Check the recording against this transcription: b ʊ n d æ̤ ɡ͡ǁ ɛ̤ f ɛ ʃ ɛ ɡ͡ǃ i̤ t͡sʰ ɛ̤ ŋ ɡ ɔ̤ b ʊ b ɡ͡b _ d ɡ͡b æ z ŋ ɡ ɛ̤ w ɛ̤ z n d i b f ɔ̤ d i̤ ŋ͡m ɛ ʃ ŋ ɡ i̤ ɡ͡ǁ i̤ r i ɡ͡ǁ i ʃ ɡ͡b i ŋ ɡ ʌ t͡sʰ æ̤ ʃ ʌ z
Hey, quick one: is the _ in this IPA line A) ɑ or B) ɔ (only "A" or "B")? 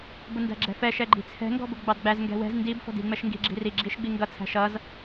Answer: A